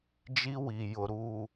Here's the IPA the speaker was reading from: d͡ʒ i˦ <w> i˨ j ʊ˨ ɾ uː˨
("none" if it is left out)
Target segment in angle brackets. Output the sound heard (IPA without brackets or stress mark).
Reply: w